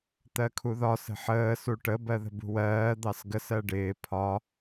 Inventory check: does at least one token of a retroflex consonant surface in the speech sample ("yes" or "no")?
yes